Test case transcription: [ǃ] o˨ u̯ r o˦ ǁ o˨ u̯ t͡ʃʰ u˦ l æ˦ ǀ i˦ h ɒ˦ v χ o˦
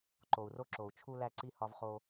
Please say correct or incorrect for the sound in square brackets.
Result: correct